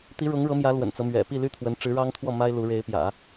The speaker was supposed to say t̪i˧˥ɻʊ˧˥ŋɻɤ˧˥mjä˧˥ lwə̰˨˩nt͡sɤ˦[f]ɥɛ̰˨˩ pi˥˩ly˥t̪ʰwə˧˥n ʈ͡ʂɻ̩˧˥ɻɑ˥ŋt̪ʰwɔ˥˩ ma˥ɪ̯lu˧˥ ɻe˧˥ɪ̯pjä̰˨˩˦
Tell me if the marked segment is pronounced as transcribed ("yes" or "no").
no